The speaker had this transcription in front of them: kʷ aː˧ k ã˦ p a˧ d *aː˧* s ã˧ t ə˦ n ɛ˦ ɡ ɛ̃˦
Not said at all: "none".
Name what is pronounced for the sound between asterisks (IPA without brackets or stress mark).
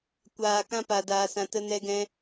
aː˧